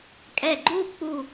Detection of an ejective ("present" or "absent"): present